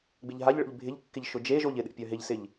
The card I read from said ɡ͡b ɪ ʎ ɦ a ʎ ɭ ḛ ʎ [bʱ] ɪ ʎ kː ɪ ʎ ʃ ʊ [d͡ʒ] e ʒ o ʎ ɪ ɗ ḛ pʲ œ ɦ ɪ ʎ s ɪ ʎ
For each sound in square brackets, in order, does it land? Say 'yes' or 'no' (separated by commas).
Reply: yes, yes